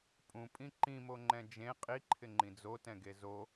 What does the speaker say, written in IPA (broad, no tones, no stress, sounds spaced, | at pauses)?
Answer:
pʼ ũ pʼ ĩ ǃ ĩ m o ŋ͡ǃ ɛ̃ d͡ʒ ẽ qʼ i ǃʰ ɪ ŋ͡ǃ ĩ d͡z o t ɛ̃ ɡ e z o